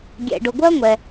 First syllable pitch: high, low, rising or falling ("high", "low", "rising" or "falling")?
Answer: low